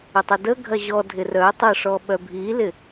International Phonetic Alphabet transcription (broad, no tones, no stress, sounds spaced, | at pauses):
ə tˤ ə d ə ɡʱ ɐ ʑ ɔ dʱ ɪ r œ tˤ ə ʂ ɔ ɓ œ bʱ i l ɪ